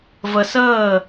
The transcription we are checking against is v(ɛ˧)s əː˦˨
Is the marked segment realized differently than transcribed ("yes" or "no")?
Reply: yes